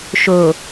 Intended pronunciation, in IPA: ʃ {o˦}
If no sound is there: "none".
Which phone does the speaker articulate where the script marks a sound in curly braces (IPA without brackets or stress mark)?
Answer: o˨